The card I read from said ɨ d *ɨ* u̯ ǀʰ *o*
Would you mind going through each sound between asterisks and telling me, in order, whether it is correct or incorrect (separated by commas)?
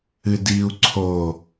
incorrect, correct